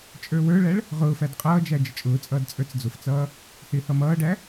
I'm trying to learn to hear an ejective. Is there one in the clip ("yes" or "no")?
yes